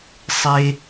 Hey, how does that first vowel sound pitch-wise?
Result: high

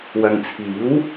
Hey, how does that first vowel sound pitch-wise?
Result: low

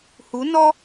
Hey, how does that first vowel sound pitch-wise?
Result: rising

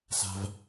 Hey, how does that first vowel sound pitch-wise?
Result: low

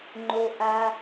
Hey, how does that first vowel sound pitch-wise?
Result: high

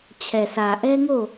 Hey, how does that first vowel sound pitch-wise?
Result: low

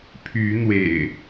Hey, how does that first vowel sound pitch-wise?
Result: rising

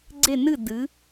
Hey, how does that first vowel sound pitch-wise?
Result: falling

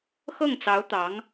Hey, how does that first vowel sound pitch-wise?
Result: falling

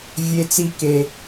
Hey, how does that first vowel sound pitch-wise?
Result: low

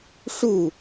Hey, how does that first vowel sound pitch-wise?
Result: falling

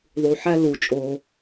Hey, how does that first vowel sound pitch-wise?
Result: low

